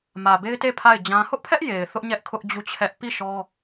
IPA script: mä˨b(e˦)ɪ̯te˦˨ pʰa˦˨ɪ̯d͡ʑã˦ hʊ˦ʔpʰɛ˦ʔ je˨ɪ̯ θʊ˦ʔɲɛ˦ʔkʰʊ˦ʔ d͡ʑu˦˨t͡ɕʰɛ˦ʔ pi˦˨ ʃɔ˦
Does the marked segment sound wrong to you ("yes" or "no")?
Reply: no